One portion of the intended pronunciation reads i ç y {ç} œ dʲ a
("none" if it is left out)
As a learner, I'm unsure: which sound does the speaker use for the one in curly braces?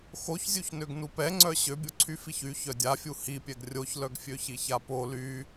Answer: ç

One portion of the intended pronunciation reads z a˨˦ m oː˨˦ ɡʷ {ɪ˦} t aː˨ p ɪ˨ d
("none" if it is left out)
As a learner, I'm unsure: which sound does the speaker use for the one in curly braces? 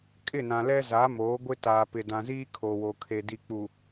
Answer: ɪ˦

